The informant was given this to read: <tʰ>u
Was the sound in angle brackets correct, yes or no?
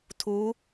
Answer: yes